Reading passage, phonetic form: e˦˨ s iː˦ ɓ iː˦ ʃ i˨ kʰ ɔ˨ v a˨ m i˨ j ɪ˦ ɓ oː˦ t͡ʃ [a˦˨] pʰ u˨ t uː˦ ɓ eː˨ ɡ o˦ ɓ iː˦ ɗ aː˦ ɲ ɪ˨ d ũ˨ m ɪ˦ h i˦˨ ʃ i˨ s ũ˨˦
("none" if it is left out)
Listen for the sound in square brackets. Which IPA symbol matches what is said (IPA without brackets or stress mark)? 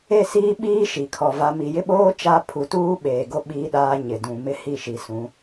a˦